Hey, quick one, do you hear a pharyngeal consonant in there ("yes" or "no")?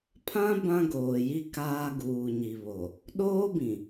no